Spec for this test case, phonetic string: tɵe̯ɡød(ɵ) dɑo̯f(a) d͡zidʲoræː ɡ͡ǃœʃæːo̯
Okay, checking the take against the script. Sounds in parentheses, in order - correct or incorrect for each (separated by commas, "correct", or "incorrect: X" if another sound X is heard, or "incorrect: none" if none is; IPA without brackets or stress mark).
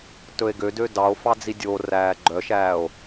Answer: incorrect: ø, incorrect: ɑ